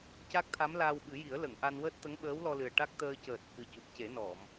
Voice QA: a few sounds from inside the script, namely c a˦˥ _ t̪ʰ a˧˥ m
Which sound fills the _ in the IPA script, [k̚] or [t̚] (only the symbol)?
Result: k̚